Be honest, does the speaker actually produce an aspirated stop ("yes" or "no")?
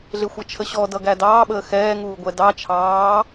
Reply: yes